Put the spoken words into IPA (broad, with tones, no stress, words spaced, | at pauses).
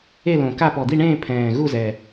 e˥˧lõ˨˩ka˥˧ pɔ˨˩d̪i˥˧ɳẽː˥˧ pʰɛ̃ː˨˩ɣu˥˧zɛ˨˩